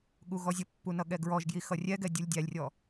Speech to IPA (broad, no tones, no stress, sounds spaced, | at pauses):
ɠ u ɣ ɔ zʲ ə pː u n ʌ ɠ ɛ ɡ ɹ ɔ ʒ ɡ j i x ʌ rʲ ɛ ɡ ɛ dʲ u lʲ dʲ æ lʲ rʲ ɔ